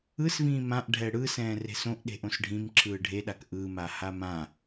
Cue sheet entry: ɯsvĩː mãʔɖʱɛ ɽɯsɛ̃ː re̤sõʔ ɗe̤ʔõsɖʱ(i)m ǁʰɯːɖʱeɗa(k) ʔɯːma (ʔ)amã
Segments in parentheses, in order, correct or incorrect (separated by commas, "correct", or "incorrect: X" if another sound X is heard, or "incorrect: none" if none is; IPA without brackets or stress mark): incorrect: ĩ, correct, incorrect: h